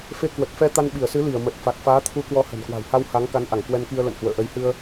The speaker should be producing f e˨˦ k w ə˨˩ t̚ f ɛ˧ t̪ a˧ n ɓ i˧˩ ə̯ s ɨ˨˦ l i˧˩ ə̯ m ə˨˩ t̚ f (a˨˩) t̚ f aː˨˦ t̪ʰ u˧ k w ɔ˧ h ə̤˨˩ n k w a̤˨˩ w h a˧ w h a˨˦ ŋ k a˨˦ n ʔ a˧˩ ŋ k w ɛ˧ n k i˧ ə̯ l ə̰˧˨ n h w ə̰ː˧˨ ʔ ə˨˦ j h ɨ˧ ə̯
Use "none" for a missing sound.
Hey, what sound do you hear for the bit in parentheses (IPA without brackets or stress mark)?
a˨˩